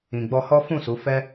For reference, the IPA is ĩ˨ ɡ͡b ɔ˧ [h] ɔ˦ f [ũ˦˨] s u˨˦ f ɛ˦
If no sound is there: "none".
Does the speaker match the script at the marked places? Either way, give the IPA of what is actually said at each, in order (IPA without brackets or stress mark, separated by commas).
h, ũ˦˨